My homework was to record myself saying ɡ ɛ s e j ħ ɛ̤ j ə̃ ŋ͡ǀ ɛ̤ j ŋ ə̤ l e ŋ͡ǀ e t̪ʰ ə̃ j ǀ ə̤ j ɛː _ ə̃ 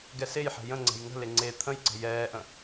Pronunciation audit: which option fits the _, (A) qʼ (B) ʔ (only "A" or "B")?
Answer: B